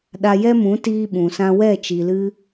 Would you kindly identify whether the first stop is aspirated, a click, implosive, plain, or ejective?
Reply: implosive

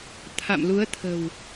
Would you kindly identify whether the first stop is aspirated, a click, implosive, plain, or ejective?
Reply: aspirated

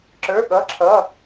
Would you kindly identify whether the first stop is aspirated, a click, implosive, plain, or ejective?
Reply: click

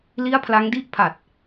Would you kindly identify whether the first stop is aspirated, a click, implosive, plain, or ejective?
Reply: aspirated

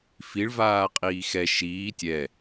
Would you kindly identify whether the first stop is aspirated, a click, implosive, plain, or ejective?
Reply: ejective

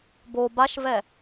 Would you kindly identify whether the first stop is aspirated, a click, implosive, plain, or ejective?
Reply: plain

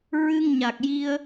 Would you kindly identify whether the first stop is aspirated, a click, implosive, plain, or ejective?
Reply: plain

